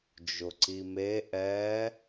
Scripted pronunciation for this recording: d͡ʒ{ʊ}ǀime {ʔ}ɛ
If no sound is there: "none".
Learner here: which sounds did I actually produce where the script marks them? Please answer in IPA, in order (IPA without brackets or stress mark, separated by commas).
ʊ, ʔ